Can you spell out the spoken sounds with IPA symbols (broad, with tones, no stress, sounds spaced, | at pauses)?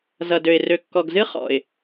z ʌ˨ d ø˨ ɪ̯ r ø˨ kː ɔ˨ ɡ z ɨ˦ χ ɔ̰˨ ɪ̯